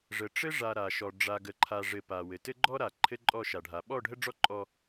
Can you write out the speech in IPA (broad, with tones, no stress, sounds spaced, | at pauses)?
ʐ ə˨ ʈ͡ʂ ɘ˦ ʐ a˨ ɾ a˨ ʃ ɔ˨ ɖ͡ʐ a˨ ɡ ə˨ ǃʰ a˨ ʐ ɘ˨ p a˨ w ɘ˨ t ɘ˦ ɡ͡ǃ ɔ˦ ɾ a˨ ǃʰ ɘ˦ ǃʼ ɔ˦˨ ʃ a˨ ɖʱ a˨ ɓ ɔ˦˨ ɖʱ ə˦ ɖ͡ʐ ɔ˦ ǃʼ ɔ˦